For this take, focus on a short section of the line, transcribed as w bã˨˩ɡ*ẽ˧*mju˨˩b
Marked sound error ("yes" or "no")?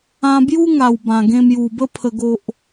no